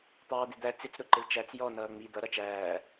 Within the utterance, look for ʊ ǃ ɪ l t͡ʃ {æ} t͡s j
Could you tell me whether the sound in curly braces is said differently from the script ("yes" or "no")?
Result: no